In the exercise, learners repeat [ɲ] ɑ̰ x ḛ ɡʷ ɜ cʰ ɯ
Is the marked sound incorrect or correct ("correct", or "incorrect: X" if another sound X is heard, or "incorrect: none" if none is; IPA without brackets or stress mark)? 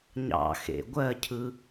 correct